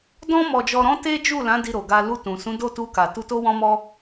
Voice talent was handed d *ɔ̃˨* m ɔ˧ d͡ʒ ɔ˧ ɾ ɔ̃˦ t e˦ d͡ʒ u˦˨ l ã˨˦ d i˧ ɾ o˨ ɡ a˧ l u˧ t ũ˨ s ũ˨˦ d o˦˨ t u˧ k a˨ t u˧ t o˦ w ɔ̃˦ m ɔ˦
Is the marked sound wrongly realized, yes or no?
yes